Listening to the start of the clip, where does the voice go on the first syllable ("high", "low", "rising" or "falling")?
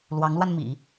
rising